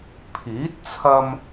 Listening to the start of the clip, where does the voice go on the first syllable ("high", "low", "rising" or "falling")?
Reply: rising